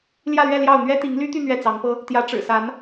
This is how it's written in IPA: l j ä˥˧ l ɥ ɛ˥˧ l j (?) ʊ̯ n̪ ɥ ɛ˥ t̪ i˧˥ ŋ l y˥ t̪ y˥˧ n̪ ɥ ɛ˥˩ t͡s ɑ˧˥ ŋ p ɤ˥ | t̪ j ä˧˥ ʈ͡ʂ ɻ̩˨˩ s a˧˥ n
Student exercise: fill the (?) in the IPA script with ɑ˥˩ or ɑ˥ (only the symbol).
ɑ˥˩